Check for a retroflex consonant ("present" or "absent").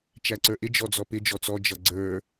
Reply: absent